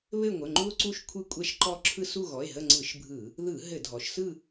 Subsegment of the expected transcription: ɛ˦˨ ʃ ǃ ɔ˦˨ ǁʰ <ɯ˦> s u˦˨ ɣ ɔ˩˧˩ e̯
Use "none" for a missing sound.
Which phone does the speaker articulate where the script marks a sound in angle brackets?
ɯ˦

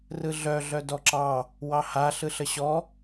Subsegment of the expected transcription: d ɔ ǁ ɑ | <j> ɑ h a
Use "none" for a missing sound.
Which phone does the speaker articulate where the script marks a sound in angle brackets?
w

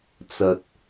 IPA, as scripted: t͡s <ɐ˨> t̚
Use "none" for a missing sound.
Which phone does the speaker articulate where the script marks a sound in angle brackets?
ɐ˨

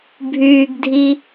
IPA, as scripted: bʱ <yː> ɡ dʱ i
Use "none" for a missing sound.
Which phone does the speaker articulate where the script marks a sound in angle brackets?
yː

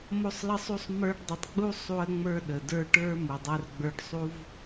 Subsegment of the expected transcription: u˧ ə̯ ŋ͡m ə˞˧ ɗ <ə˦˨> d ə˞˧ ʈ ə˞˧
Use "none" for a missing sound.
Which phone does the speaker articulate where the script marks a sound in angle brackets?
ə˨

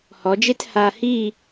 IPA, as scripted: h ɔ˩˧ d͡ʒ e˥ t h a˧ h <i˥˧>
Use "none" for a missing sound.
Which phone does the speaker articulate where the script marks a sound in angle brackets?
i˥˧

